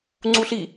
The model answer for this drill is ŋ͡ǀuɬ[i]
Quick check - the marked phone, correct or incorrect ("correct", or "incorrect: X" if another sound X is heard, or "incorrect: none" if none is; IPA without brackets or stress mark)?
correct